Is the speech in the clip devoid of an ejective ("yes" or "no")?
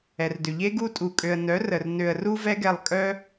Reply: no